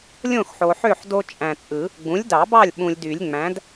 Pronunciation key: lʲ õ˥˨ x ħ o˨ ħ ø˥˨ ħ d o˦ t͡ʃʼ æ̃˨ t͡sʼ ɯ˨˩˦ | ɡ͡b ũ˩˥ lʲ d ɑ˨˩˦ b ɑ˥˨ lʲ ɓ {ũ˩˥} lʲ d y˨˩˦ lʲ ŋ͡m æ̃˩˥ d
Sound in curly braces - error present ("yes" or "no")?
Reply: yes